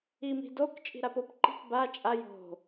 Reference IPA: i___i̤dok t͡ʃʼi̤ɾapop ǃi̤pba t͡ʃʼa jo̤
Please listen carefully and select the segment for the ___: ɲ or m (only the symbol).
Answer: m